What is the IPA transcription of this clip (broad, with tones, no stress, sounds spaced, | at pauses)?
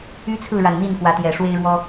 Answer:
y˦ t͡sʰ ɹ̩˥˨ ɻ a˨˩ n n̪ i˥˨ n k w ä˨˦ t̪ j ɛ˨˩ ʂ w e˦ ɪ̯ ɻ w ɔ˦